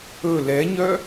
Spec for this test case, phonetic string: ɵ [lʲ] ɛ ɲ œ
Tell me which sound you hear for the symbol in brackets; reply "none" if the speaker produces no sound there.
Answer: l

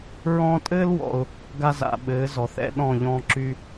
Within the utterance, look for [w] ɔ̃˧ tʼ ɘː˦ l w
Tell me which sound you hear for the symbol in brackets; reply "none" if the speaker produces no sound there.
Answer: ɹ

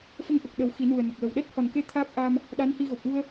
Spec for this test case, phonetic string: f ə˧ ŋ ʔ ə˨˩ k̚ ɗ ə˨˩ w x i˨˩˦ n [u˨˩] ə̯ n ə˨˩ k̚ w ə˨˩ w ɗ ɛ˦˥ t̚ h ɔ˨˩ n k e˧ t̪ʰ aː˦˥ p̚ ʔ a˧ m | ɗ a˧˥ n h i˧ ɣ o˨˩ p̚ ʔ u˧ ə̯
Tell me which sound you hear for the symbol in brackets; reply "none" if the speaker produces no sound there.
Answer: u˨˩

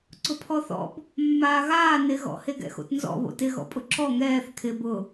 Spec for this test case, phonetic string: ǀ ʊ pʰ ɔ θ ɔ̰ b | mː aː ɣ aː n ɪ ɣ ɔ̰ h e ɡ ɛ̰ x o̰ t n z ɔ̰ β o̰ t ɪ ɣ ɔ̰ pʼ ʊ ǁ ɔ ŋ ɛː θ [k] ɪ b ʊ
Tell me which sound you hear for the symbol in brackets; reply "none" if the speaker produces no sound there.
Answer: kʰ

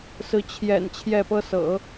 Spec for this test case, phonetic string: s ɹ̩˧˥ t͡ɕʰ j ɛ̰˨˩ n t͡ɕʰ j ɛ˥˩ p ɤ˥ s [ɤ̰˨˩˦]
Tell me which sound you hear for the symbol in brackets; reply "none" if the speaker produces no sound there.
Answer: ɤ̰˨˩˦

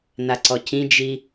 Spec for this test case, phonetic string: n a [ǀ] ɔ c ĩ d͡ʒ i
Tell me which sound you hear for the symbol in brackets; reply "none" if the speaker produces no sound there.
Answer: ǀ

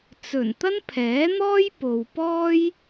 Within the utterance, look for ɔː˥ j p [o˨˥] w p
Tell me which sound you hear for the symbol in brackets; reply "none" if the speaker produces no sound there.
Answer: o˨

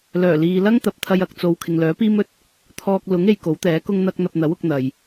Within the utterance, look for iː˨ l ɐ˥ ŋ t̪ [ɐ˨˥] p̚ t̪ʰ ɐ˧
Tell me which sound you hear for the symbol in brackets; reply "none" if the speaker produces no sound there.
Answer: ɐ˨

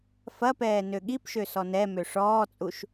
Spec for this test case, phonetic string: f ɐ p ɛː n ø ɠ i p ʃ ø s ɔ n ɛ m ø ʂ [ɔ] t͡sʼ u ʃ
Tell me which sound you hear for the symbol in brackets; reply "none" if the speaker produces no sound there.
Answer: ɔː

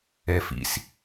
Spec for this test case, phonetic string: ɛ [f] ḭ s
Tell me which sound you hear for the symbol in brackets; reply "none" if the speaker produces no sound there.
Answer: f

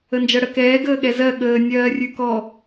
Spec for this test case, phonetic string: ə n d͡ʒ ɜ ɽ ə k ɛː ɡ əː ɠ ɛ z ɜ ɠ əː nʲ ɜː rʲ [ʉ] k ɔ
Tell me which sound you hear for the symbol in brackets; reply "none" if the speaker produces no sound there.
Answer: ʉ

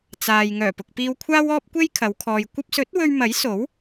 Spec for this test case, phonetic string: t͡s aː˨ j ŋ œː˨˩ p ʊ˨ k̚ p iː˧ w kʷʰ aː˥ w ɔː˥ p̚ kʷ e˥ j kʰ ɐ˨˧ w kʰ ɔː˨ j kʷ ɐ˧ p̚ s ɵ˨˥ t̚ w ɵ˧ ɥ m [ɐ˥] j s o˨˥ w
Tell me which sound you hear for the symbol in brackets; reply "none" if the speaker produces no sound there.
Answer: ɐ˨˥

